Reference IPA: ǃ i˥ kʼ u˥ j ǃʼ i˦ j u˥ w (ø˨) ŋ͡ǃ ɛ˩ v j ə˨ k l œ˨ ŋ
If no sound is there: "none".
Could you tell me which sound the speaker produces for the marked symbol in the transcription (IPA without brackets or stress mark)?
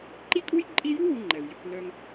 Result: u˨